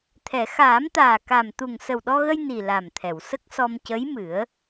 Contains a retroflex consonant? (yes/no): no